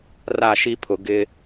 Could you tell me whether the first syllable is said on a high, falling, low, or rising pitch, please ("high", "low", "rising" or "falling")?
falling